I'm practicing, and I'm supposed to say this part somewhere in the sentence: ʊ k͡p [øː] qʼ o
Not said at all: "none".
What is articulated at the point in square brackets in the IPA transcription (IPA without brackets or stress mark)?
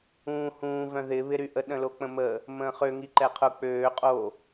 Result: øː